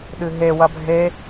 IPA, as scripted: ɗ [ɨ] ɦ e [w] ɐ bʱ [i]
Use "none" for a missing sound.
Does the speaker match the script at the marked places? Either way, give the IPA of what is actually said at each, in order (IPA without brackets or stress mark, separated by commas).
ɨ, w, e